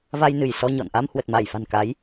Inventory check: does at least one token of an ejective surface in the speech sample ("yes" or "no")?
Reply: no